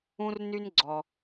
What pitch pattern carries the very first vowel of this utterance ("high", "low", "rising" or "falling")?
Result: high